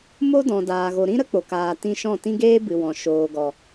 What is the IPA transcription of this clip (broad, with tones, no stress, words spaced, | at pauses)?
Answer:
mo˦ dɔ̃˨daː˨ɣo˨ɾĩ˦ ɾə˦k͡po˨k aː˨ tĩ˧ʃɔ̃˦˨ tĩ˦ɡeː˦bɨ˨wɔ̃˨ ʃoː˨ɡɔ˨